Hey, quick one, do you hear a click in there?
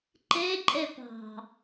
yes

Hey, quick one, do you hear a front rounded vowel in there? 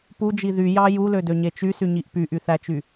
yes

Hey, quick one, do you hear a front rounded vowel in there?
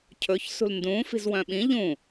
yes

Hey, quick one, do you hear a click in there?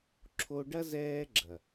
yes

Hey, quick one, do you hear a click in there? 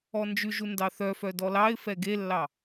no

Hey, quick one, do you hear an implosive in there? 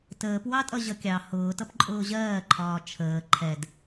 no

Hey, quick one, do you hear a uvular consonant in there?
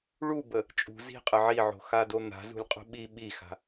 yes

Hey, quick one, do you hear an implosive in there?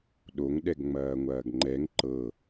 yes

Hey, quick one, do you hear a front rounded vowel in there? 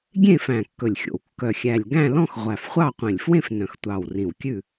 yes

